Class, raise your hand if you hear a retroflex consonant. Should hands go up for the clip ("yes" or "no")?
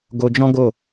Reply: no